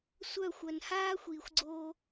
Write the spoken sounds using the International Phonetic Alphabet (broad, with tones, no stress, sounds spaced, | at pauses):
sʷ œ˦˨ xʷ œ˨ n h aː˦ xʷ iː˨ xʷ ɡ͡ǀ oː˧